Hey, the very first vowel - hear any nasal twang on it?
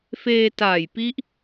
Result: no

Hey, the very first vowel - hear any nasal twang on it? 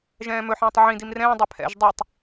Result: yes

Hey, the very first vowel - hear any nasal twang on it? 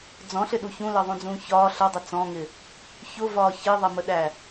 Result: yes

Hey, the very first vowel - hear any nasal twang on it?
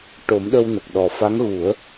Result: no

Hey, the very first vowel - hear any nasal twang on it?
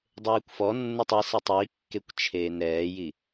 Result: no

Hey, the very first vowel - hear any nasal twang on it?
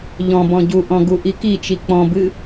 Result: yes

